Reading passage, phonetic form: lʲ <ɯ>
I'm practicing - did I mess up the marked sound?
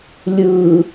no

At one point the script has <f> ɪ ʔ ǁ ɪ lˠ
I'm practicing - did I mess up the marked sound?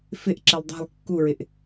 no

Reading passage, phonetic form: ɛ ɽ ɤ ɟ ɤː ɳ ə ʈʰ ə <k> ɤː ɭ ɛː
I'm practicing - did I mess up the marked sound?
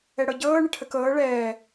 no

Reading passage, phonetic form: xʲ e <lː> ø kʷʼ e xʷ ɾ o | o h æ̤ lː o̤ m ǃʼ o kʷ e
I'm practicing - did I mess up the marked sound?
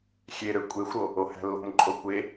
yes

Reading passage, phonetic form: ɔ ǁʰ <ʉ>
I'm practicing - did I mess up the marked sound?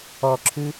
no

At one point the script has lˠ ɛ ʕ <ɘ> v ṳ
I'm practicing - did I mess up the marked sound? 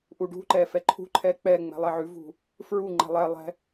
yes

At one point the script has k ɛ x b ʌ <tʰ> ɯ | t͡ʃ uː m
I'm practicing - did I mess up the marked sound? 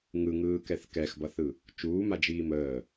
yes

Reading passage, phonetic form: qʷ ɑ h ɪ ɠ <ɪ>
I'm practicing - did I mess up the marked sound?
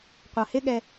yes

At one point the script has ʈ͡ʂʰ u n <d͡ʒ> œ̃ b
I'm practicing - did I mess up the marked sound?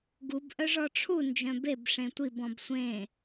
no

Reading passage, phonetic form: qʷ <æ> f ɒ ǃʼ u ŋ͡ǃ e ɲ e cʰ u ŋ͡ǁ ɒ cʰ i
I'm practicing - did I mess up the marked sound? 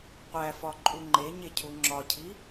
no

